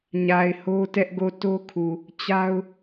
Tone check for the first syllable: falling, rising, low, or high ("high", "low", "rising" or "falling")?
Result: low